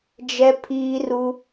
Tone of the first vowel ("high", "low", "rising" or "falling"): high